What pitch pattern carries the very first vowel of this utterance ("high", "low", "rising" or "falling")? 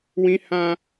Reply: high